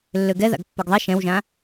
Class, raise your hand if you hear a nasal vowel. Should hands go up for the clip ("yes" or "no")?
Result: yes